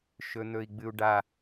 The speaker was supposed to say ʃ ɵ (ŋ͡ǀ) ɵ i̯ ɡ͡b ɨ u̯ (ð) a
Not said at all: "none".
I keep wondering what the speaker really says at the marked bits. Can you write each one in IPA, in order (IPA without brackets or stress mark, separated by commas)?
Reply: n̪, ɖ